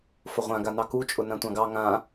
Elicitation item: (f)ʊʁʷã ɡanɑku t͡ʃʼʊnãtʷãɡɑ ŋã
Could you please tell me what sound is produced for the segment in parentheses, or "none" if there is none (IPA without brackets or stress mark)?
f